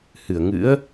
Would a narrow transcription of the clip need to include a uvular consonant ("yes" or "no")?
no